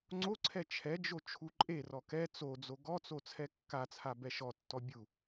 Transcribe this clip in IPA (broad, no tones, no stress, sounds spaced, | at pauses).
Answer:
ŋ͡ǀ o ǀʰ ɛ t͡ʃʰ ɛ d͡ʒ o t͡ʃʰ u ǃʼ e r ɔ k ɛ t͡s o d͡z o ɡ ɔ t͡s o t͡sʰ ɛ kː a t͡sʰ a b ɛ ʃ ɔ tː ɔ bʲ u